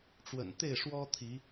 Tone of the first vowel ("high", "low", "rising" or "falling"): low